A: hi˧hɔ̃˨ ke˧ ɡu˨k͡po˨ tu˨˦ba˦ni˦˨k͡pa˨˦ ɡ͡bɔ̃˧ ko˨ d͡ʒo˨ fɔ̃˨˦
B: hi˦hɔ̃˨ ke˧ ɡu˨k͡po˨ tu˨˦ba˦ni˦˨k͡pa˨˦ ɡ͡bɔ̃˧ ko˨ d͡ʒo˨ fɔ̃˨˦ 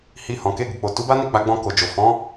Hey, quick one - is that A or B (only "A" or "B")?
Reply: A